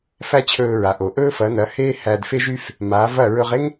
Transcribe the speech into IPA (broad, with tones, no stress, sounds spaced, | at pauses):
f æ˥ t͡ɕʰ ɵː˧ ɹ a˩ ʔ o˩ ʔ ɵː˥ f ɐ˩˥ n ɐ˩˥ h eː˥ h æ˧ d f e˥ ʒ y˥ f | m aː˩˥ v ɐ˥˩ ɹ ɵ˧ ʁ e˥ ŋ